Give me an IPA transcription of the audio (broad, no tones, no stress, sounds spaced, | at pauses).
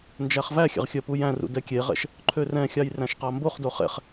n d͡ʒ æ χ v æ xʲ ɛ̰ ʁ xʲ œ p u j æ̃ r ṵ d ɛ kʲ e ʁ ɛ̰ ʃ | ǃʰ ø r ɛ̃ xʲ ɑ j r æ̃ ʃ q ɑ m b o χ d o χ ɛ̰ χ